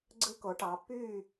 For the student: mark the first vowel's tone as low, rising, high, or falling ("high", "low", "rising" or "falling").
high